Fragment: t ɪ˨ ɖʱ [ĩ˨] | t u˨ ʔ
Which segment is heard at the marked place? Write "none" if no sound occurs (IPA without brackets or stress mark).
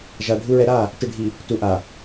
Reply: i˨